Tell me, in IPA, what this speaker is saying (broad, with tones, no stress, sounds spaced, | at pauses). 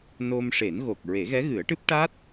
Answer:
n o˧ m ʂ e˨˩˦ n ɣ o˨˩ k̚ ɹ e˨˩˦ ɣ ɛ˧˥ ɣ ɨ˨˩˦ ə̯ ʈ ɨ˦˥ p̚ ʈ a˦˥ t̚